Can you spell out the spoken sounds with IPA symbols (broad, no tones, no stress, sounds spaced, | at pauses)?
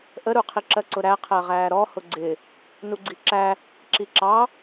ʔ ə ɾ u qʰ i ǁ ɜ ǀ ʊ ɾ æ qʰ ɜ ʁ æː ɾ ɔ h ʊ ɡ͡ǀ ɪ | n u ɡ͡ǀ i ǁ æ | ǁ i ǁ ɑ